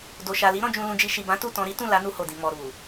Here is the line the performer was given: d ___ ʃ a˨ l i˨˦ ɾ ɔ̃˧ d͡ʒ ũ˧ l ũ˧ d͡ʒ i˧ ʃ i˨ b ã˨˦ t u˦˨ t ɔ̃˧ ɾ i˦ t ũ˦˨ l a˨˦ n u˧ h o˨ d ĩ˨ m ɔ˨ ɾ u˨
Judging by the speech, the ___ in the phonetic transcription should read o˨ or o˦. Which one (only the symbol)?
o˨